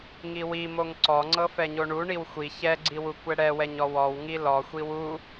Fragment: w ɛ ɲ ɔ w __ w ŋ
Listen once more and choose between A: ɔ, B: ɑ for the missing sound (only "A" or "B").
A